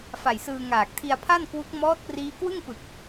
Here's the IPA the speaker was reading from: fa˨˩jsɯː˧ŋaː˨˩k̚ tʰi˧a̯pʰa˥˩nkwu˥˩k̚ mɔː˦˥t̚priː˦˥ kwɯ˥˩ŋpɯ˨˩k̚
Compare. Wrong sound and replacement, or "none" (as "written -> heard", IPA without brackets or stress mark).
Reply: u˥˩ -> u˦˥